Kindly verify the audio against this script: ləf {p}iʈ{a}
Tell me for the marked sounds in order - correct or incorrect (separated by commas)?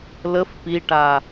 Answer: correct, correct